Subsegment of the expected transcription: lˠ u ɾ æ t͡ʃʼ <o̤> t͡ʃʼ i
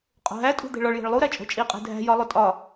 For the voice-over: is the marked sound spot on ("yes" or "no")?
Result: yes